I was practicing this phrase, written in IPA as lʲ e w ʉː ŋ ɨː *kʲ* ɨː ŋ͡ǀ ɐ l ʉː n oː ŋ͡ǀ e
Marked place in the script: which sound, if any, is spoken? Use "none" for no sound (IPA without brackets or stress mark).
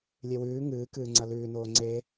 k